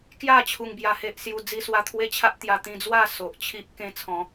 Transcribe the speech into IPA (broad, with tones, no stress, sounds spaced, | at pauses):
k j a˥˧ t͡ɕʰ u˧ ŋ b j a˧ h e˦ ʔ s j u˦ d͡z i˧ s w a˧ t̪ʰ w e˦ t͡ɕʰ a˦ ʔ t̪ j a˧ t̪ ĩ˧ d͡z w a˥˧ s o˨ ʔ t͡ɕʰ i˦ ʔ k ẽ˧ t͡sʰ ɔ̃˨˦